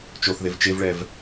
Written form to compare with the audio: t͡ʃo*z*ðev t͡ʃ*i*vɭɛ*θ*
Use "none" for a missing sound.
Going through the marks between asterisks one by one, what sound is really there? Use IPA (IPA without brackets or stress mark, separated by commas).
θ, e, v